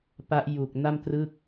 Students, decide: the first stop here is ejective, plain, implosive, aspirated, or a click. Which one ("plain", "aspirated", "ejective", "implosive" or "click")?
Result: plain